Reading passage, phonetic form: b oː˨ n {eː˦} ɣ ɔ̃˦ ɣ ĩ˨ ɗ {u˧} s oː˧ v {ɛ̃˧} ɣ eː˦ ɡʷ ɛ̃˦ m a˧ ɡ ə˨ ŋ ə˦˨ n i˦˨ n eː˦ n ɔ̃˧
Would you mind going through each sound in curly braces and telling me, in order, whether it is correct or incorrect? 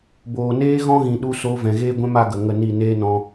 correct, correct, incorrect

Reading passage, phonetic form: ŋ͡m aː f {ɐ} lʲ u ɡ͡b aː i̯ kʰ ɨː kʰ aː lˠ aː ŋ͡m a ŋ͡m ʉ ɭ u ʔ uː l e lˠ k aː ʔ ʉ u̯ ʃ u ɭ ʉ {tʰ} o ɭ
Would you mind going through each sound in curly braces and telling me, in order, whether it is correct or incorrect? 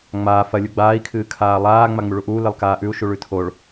correct, correct

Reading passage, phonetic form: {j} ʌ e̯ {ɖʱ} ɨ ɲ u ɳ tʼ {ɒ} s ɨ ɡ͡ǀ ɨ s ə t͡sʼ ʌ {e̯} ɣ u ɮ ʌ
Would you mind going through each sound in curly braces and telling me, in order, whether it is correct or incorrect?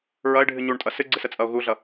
incorrect, correct, incorrect, incorrect

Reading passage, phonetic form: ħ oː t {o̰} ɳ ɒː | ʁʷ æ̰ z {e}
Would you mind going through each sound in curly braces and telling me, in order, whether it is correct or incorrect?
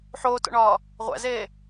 correct, incorrect

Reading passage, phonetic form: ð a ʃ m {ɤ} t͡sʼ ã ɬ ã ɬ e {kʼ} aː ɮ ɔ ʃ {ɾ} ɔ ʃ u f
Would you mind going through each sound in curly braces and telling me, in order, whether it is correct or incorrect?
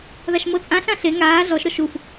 correct, incorrect, correct

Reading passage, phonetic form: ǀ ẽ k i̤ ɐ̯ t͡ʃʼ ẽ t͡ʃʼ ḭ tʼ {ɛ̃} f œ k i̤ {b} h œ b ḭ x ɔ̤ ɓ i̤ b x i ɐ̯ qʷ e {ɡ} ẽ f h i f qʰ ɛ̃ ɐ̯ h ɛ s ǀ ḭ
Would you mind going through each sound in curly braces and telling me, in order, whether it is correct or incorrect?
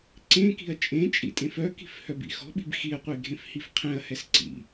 incorrect, incorrect, incorrect

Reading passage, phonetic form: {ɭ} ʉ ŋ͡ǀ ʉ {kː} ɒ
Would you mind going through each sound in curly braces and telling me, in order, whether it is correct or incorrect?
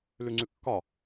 incorrect, correct

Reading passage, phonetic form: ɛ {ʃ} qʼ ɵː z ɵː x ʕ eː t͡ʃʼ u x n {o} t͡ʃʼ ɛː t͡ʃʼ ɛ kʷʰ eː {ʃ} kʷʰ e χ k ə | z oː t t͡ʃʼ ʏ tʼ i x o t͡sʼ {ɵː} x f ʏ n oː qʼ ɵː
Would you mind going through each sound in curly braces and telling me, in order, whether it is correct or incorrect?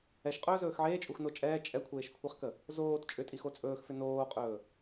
correct, correct, correct, correct

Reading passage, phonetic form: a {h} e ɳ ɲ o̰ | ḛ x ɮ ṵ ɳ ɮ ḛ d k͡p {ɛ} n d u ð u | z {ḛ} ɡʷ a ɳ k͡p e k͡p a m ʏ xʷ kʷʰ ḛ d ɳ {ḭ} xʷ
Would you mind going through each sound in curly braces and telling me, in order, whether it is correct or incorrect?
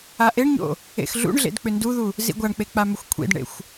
incorrect, incorrect, incorrect, incorrect

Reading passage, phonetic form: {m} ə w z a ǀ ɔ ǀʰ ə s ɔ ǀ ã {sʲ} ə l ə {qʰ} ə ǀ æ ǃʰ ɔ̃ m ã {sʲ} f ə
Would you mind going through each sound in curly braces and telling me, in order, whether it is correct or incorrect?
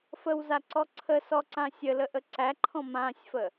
incorrect, correct, incorrect, correct

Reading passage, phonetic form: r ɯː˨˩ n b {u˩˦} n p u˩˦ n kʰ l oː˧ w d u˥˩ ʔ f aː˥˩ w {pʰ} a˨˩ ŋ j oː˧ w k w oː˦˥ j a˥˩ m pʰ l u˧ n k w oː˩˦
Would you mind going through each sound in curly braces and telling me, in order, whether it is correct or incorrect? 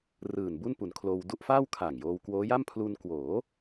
incorrect, incorrect

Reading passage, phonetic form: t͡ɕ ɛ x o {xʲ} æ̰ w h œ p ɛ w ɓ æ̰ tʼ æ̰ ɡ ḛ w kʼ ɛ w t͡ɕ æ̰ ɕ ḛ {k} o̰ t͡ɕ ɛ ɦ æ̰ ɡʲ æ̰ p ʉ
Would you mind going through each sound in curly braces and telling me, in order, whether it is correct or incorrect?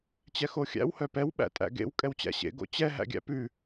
correct, incorrect

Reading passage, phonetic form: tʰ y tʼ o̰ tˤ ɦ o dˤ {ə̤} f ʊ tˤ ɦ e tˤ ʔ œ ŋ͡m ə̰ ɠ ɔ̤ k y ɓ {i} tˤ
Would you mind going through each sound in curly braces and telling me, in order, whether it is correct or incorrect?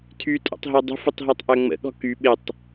correct, incorrect

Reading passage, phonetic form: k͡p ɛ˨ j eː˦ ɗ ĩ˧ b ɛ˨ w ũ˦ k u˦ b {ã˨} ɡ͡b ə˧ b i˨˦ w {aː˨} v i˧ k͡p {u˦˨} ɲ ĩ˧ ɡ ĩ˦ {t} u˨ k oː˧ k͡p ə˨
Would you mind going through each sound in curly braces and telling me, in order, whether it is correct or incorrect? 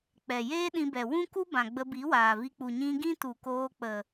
correct, correct, incorrect, correct

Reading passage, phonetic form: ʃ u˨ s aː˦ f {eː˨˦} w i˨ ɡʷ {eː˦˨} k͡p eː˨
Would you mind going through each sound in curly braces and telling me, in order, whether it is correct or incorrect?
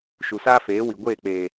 correct, correct

